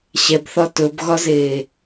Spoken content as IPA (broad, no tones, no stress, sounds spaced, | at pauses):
ɕ ɛ b θ ɒ t ɵ b ɣ ɒ z eː